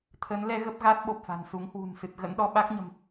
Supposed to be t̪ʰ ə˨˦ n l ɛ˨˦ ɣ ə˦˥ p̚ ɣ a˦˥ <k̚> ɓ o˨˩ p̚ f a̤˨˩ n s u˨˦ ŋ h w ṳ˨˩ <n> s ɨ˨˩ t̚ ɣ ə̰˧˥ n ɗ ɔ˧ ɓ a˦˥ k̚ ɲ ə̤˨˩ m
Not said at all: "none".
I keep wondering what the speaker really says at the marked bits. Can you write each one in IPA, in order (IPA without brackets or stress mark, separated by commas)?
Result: t̚, n